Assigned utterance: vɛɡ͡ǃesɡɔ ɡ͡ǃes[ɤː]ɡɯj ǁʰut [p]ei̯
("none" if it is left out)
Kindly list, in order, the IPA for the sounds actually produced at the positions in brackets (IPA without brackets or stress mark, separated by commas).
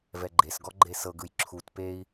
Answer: ɤ, p